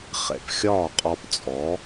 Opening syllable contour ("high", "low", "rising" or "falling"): low